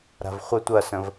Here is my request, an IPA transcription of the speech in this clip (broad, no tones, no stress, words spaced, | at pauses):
ɾa̤vχʷə tʷɐsə̃v